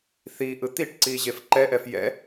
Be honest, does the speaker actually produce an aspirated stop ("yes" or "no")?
no